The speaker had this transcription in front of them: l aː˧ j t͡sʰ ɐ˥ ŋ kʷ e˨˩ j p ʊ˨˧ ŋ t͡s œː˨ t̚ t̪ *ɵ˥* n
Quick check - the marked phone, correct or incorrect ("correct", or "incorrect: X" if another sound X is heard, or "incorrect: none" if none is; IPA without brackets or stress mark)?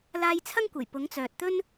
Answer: correct